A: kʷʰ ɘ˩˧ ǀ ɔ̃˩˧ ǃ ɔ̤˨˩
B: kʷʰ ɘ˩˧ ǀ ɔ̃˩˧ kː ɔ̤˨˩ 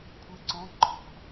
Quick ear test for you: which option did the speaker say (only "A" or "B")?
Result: A